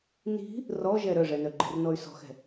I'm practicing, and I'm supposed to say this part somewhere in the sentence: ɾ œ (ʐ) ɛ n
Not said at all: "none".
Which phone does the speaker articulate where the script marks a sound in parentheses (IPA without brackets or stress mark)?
ʐ